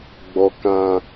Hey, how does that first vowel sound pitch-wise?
high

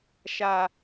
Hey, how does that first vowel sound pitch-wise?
high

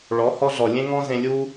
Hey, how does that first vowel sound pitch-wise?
rising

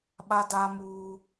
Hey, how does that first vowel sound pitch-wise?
high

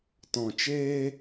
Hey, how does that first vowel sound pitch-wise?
low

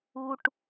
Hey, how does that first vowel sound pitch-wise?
low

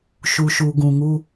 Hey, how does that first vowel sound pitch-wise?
low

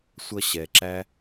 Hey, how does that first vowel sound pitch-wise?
high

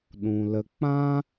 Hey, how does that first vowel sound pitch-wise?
low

